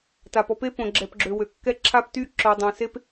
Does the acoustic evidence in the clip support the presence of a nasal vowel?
yes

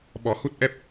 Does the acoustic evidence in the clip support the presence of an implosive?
yes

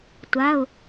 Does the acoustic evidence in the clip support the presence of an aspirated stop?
no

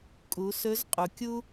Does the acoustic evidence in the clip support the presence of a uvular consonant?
yes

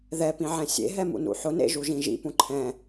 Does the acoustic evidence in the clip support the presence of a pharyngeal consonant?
yes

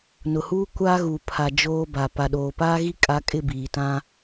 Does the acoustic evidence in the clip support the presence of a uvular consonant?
no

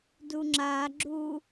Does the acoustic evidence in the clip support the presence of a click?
yes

